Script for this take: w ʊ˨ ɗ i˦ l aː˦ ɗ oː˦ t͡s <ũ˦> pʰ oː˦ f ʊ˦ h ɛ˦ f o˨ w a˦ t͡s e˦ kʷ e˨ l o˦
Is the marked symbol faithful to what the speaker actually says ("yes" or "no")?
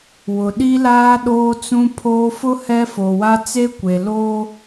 yes